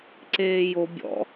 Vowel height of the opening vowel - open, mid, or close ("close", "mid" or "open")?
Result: mid